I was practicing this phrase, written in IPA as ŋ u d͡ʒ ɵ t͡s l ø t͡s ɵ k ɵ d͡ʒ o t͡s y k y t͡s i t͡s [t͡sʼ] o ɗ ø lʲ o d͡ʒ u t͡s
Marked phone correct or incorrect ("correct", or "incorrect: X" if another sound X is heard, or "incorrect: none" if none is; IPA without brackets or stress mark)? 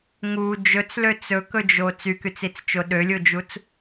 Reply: incorrect: t͡ʃ